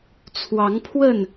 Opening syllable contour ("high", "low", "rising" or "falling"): rising